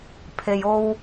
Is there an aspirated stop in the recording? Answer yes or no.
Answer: yes